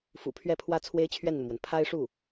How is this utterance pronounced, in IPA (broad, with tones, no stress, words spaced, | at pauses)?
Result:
fṵ˨˩ pʰɥɛ˥˩pʰwä˥ t͡sʰwe˥ɪ̯t͡ɕʰɥɛ˥˩nn̪u˩mwə˩n pʰa˥ɪ̯ʂu˥˩